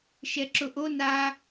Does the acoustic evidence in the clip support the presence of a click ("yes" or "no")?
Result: yes